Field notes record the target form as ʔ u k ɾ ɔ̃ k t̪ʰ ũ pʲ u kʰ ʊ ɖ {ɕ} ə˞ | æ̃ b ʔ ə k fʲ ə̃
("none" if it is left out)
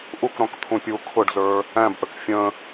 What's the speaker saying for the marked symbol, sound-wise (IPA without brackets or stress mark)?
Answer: z